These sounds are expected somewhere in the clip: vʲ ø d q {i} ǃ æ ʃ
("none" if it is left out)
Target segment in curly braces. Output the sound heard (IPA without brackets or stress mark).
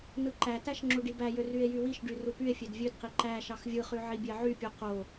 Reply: i